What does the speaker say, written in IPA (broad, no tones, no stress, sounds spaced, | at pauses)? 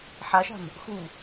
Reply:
ħ a ʃ a̤ m | x u